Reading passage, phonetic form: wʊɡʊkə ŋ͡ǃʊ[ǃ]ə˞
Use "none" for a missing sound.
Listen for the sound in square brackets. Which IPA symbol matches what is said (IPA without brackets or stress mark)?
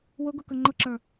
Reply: ǁ